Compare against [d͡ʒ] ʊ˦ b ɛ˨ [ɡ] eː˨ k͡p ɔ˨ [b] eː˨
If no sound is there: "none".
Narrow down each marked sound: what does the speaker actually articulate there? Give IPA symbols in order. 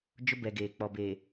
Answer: d͡ʒ, ɡ, b

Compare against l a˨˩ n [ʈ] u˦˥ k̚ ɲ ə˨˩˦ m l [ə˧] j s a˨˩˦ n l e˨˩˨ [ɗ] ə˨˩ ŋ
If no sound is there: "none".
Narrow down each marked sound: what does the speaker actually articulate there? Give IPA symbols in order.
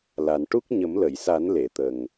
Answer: ʈ, ə˨˩˨, t̪

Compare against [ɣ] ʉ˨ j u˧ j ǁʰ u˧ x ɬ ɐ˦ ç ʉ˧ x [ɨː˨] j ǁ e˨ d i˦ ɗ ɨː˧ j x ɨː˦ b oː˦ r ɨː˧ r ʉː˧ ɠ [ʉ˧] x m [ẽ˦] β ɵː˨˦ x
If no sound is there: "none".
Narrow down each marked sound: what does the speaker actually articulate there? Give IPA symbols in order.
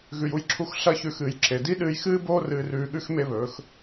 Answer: ɣ, ɨː˨, ʉ˦, e˦

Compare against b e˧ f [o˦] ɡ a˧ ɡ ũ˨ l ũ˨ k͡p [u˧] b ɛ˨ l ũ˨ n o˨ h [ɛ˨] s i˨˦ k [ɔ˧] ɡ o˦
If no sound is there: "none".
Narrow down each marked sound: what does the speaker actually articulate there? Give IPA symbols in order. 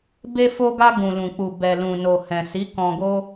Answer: o˧, u˨, ɛ̃˨, ɔ̃˧

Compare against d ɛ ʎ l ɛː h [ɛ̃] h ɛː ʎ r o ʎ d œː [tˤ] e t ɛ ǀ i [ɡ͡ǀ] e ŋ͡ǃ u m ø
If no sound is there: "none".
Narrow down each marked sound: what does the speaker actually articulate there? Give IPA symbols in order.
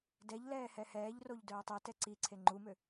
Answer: ɛ, tˤ, ǀʰ

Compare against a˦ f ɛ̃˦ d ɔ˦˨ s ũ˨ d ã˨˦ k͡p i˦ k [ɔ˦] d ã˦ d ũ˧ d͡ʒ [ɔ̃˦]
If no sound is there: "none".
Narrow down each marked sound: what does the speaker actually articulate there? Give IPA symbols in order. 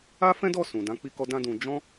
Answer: ɔ˦, ɔ̃˦

